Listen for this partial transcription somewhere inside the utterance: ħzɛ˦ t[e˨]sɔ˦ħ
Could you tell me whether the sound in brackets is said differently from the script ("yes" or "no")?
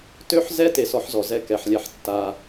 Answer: yes